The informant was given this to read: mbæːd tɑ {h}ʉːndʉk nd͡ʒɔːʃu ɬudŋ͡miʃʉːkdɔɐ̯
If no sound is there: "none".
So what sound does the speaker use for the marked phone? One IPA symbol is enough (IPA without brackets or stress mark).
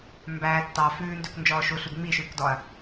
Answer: f